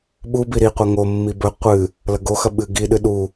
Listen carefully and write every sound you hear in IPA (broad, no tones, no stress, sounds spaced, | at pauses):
ɓ u b i ɾ i qʷ a ŋ o mː i b ɵ qʷ ɨ | l ɐ ɡ o x ɐ ɓ ɨ ɡ i ɗ ɨ ɗ u